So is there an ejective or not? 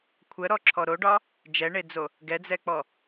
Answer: no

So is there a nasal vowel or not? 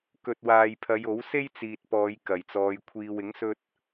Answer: no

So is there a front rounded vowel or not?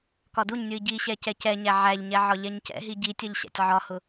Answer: no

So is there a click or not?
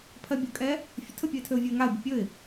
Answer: no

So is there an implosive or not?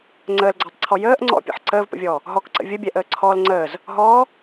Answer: no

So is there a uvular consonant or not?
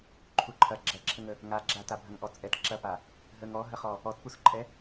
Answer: yes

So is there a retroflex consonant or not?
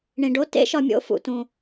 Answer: yes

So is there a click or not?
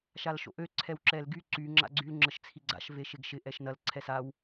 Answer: yes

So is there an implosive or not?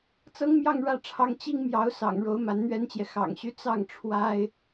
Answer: no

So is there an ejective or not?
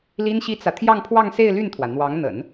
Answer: no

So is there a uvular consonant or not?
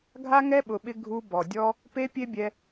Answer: no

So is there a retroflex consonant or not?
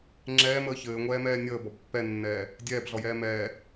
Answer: no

